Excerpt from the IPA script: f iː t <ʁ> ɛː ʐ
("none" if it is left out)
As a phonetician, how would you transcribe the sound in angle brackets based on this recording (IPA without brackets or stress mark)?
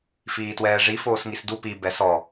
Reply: w